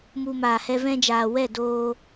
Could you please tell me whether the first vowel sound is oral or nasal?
oral